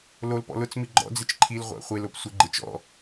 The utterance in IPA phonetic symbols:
lolpɔ̰ lʊt͡smi ɡ͡ǃɔ̰d͡zɪt͡ʃ ǃʰilʁʷa̰ χʷelop sʷɪ ɡ͡ǃɪt͡ʃ ɔ̰

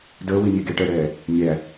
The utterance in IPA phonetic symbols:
dəːwimʲe ɡeʈəːɽɛː | mʲæ

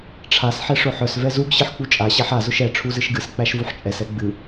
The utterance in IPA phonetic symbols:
ʈ͡ʂʰas ħɛʂʊħœs vɛzuɡ ɕɨħk͡put͡ʃʼa ɕæħa zʊʃɛ ʈ͡ʂʰuzɨʃɡɨs k͡pæʃvuħt͡ʃʼɛs ɛɡ͡bɨ

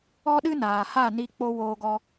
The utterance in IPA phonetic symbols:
ɔ˦ɗɨ˦ naː˨ha˦˨ ni˧ k͡po˧ woː˧ɡɔ˧

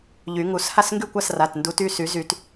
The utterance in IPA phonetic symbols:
ʎy˨˩˦ŋu˨˩˦s ha˥˩sŋɡy˥˩kʷa˥˩s ra˩˧˩tndu˨˦ty˩˧˩ sy˨˩˦zy˨˩˦t

